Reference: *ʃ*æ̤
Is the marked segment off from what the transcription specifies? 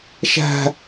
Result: no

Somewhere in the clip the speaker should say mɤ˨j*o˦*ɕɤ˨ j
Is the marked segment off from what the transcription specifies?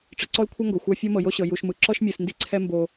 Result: no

